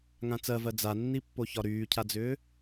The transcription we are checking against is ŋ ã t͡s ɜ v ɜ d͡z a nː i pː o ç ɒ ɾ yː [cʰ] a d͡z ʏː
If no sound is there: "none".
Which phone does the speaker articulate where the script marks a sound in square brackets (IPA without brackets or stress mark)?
cʰ